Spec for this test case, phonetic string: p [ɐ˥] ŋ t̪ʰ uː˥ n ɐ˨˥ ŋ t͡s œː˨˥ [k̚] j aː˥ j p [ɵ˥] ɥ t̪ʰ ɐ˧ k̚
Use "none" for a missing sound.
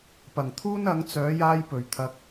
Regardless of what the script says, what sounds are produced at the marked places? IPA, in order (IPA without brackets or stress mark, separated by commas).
ɐ˨˩, none, ɵ˨˩